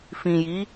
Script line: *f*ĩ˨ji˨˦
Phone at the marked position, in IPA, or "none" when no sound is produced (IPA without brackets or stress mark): f